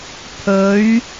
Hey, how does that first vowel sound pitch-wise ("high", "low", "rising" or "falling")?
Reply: rising